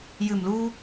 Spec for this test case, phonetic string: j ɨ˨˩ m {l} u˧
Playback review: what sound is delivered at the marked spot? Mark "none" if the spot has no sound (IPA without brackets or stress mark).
l